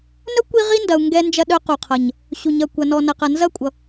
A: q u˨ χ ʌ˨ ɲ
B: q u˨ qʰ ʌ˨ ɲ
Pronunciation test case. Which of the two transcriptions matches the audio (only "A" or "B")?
B